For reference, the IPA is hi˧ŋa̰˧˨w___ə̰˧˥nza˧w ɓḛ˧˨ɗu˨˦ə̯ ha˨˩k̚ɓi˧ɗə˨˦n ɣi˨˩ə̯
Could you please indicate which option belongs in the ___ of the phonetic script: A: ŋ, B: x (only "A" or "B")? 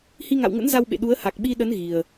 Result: A